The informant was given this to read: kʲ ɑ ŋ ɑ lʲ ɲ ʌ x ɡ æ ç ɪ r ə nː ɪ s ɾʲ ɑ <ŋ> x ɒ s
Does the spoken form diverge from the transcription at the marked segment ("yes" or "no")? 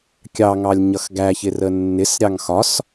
no